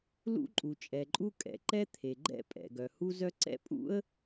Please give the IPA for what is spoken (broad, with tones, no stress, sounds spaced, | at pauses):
l ṵ˥ ǃʼ u˩ t͡ʃʼ ɛ˩ ǃʼ u˥ kʼ ɛ̰˩ ǃ ɛ˥ t̪ʰ e˩ ɡ͡ǃ ɛ̰˥ pʼ ɛ̰˩ ɡ œ˩ h u˥ z œ˥ ǀ ɛ̰˥ pʼ ṵ˥ ə̯